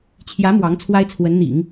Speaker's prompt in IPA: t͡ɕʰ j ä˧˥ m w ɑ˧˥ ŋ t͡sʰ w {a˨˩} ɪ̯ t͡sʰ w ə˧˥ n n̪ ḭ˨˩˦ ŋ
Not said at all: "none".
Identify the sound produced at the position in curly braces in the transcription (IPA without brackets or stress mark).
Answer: a˥